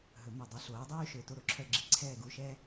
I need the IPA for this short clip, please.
ɦɵ˨˩˦mœ˧˩ dˤy˨˥ɬoː˨˥dˤyː˥ ʃø˧˩ to˥˧ɾo˨˩˦ǁʰœ˥˧ɡ͡ǁi˧˩ ǀʰɛː˥˧ɡu˧˥˧ʃɛ˥

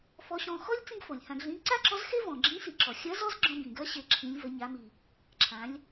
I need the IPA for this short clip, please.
fɔ˧˥ɕɔ̃˧ xɔ˥lʲ t͡sĩ˥ɡfo˩lʲhã˧ɡ ɮĩ˧˥ ǀa˥ǁɔ˧˥zxe˥ vɔ̃˩ɡ͡ǁĩ˧˥si˩ǁɔ˩ xʲɐ˧˥z ɔ˥z ɡ͡ǁɔ̃˧bĩ˩ɡɐ˧˥ ɕe˩˧ǁʰĩ˩˧lʲ və˩˧ɲa˩˧mi˩ | ǁʰã˩˧lʲ

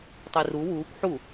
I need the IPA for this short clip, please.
tˤiru wuːkʷ ħu

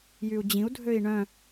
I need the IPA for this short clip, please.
jyu̯d͡ʑĩu̯dʱøi̯ ɳœ̃

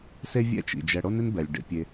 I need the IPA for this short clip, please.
se˦vʲɛ̰˦t͡ʃḭ˩d͡ʒɛ˨ ɽo˦nɪ˦nbɛ˩lʲ ɖḛ˨pʲe˨

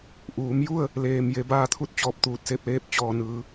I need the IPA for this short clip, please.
ʔuː˩˧mju˥˨ə̯ | leː˧m je˧˥ baː˥˨t̪ʰu˥˨t̚t͡ɕɔː˧˩p̚ t̪uː˧˩t̚se˥˨p̚leː˥˨p̚ t͡ɕɔː˧˩nɯː˩˧

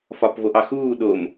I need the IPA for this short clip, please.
fɒpvoʔɑxuː ɗom

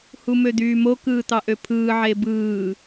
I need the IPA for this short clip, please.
humød̪yːmo kɯːt̪ɑʔøpʰɯː ʕebɯː

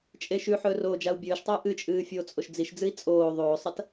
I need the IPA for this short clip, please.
t͡ʃʼeʃʉħɵː roːd͡ʒau̯bʲɵːʃtˤɵu̯ ʔɨt͡ʃʼɨː fʲoːt͡sʼoʃd͡ziʃd͡zɨi̯ t͡sʼoː ðˤoːsˤɐt

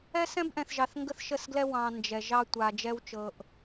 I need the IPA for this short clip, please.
ɛ˦sɛ̃˦bʔɛ̃˨θʒɑ˨θ ŋɡə˦θʃə˦˨sɡlɛ˦ wɑ̃˨ nd͡ʒɛ˨ ʒɑ˦tʷa˨d͡ʒɛ˦wt͡ʃɤ˨ʔ

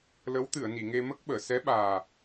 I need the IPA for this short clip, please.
lə˧˥wt̪ɨ˨˩˨ə̯ni˨˩˨ ŋe˧mə˦˥k̚ɓəː˨˩˨ sɛ˧˥ɓaː˨˩

